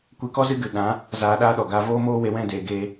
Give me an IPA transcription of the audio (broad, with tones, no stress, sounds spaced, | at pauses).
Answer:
kʷ e˧ k ɔ˦ z ɨ˦ ɡ ɨ˨ ɗ ã˨˦ | z aː˧ ɗ aː˦ ɗ ɔ˨ ɡ aː˦ v oː˦ m oː˦ w e˨˦ w ɛ̃˦˨ d eː˨ ɡ eː˧